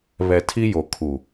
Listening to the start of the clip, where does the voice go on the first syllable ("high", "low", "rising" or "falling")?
low